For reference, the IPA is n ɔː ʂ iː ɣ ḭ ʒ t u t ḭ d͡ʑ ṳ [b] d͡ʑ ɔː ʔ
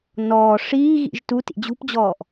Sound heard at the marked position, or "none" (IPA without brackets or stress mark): p